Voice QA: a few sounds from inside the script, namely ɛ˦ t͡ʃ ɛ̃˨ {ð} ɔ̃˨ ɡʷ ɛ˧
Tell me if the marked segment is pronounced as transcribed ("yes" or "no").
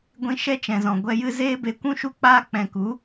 no